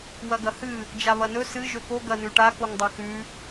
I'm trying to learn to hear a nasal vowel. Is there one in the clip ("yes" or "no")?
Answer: no